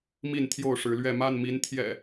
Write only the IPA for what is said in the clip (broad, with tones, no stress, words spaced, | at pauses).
mi˥˨nt̪ʰjo˥˨ʊ̯ʂɻ̩˨˦lɥɛ˥˨ ma˥˨nmi˨˦nt̪ʰjɛ̰˨˩